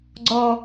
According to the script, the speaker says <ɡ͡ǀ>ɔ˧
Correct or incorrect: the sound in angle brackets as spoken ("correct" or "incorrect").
correct